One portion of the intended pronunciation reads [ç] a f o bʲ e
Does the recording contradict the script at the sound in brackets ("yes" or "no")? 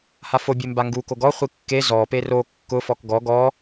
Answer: yes